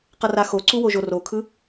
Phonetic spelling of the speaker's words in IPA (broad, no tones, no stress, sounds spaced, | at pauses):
q ʌ r a x o ǀ u w o ʒ o r o kʰ ɯ